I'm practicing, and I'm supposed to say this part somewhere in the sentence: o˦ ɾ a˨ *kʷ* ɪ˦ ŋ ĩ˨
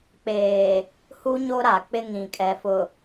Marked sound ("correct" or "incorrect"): incorrect